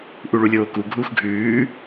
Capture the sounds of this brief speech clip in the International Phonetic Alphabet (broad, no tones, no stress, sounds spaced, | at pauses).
ʔ u ɭ u lʲ oː k u ɡʱ uː x ɡʱ ʉː